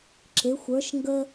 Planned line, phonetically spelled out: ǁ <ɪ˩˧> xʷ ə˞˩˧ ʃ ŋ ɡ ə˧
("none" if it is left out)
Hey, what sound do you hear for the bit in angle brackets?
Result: ɪ˩˧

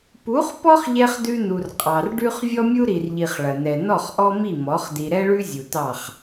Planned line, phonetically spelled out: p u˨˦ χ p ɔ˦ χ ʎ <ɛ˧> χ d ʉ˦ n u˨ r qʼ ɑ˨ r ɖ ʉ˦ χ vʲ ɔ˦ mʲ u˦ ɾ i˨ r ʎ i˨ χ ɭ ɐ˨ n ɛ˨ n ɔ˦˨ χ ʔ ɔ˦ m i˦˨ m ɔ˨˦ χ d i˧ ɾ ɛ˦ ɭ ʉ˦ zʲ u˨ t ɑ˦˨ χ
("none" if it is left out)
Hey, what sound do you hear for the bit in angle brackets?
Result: ɛ˧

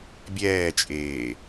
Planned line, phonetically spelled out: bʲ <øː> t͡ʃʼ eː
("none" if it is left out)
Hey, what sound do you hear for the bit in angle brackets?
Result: ɛː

